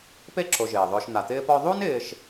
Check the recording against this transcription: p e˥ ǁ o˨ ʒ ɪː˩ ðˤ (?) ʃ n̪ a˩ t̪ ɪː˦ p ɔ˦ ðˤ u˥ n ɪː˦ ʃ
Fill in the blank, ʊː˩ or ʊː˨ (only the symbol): ʊː˨